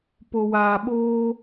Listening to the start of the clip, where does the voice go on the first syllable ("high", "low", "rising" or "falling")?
low